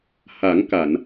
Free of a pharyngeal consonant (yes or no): yes